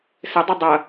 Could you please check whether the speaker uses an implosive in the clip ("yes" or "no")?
no